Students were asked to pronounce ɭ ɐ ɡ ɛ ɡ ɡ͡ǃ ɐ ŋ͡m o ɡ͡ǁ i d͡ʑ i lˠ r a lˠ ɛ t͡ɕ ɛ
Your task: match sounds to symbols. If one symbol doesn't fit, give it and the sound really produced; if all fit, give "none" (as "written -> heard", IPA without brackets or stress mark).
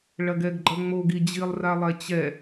ɡ͡ǁ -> ɡ